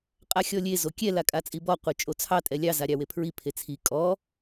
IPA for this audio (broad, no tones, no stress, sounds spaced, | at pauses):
qʼ a xʲ ɔ lʲ e z o kʲ ɛ l a kʼ a t͡sʼ i b ɔ qʷ e t͡ʃʼ o t͡sʰ ɑ tʼ ɛ lʲ ɑ z a ɾʲ ɑ w e pʰ ɹ i pʰ e t͡sʰ i kʼ ɔ